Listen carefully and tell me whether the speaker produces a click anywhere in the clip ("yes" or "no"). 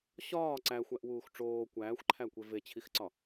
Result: yes